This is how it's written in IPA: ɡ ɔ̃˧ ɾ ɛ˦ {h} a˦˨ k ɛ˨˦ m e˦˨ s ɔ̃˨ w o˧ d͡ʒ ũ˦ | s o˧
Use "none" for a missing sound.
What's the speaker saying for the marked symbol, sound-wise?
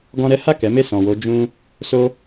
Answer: h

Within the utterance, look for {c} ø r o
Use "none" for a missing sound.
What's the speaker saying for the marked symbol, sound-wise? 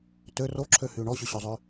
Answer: t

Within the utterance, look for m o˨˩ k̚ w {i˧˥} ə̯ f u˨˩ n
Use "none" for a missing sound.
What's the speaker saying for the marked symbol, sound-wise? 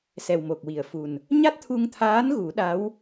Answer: i˨˩˨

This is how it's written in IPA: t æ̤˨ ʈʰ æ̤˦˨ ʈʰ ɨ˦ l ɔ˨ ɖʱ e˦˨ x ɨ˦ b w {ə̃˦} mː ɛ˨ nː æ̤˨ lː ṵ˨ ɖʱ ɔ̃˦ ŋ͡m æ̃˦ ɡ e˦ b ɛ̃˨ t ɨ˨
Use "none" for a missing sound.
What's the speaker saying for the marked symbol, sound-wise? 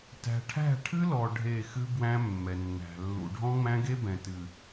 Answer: æ̃˦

